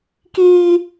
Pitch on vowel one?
high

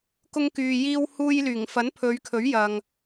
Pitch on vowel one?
high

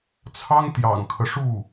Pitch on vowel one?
high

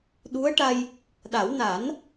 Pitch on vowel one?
rising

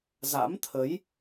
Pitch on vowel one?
rising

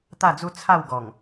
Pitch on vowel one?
falling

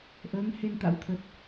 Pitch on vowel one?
rising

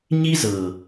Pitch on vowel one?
high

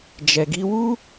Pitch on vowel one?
low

